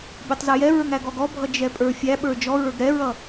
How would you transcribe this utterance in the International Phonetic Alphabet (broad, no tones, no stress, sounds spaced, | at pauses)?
bʲ ə˞ tˤ z ɛ j ɛ ɹ ə˞ ŋ æ ɡ ɔ ɡ ɔ bʱ ʌ d͡ʒ ɛ pʼ ə˞ fʲ æ ɓ ə˞ d͡ʒ ɔ ɹ ə˞ ɡ ɾ ɛ ɹ ʌ